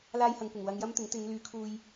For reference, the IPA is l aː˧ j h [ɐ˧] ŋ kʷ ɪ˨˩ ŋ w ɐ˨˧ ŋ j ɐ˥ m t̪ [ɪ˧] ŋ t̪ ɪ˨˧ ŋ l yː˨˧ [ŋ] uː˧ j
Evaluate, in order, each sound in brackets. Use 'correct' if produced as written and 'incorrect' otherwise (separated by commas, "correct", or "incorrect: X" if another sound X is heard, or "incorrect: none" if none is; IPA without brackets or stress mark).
incorrect: ɐ˨, incorrect: ɪ˨˥, incorrect: kʰ